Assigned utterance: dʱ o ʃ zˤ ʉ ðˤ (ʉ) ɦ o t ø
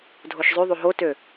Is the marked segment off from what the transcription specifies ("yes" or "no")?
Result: yes